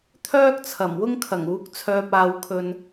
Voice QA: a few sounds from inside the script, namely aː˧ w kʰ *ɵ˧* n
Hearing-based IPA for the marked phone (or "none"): ɵ˧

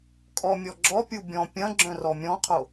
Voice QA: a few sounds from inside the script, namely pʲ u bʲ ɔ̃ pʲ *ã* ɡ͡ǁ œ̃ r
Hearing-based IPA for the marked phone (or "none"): ɐ̃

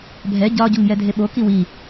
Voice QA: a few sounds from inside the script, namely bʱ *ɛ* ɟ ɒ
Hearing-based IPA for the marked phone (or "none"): ɛ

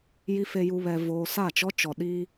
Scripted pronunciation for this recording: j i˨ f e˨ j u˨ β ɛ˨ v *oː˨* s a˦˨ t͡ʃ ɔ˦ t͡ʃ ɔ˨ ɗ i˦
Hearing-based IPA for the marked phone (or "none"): oː˨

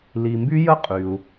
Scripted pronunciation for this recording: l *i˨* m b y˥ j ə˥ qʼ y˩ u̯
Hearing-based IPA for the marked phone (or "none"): i˨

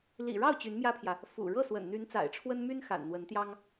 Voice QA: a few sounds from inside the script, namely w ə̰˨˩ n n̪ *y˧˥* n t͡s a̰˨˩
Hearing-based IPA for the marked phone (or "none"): y˧˥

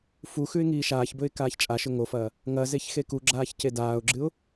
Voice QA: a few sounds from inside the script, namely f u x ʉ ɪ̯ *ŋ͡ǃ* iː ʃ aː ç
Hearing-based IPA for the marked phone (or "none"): ŋ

